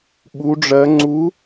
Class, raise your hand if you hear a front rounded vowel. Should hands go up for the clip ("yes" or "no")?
no